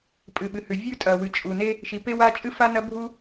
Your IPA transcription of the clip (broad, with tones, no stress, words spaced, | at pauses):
pʼɨ˩ɓɨ˩hʉ˩ vʲʉ˥ tʼɐ˩wɨ˩ t͡ʃʼu˩ne˥ | ʃi˩pe˥wa˥ t͡ʃʼɨ˥fa˥nɐ˥bʱu˥